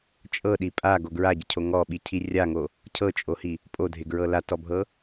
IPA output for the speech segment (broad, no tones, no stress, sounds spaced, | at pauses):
t͡ʃʼ ɤ ɗ i pʼ a ɡ o ɡ ɹ a ɟ ɪ cʰ o ŋ ɔ ɓ i cʰ i rʲ a ŋ o | cʰ ɤ t͡ʃʼ o h i | pʼ o dʱ ɪ ɡ ɹ ɤ l a t ɔ bʱ ɤ